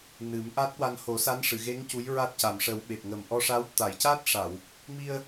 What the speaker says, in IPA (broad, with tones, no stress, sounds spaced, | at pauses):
n ɨ˨˩˦ m ʔ a˦˥ t̚ w a˧ n h o˨˩˦ s a˧˥ n ʂ ɨ˨˩˨ ɣ e˧˥ ŋ c u˧˥ j ɹ a˦˥ t̚ c a˨˩ m ʂ ə˨˩˦ w ɓ e˨˩ p̚ ŋ ə˨˩ m ʔ ɔ˧ ʂ a˧˥ w t̪ a˨˩˨ j c a˦˥ t̚ ʂ a˨˩˨ w | m i˧ ə̯